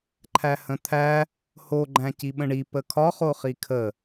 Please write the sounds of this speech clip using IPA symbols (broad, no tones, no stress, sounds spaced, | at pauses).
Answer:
ǃʰ æ h ə̃ t̪ʰ æ | h o ɡ͡ǃ æ̃ c i ɓ ə̃ ɳ i p ə kʰ ɒ χ o χ i kʰ ə